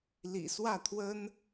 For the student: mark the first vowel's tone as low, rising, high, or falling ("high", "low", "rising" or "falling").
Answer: low